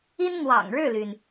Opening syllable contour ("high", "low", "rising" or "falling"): high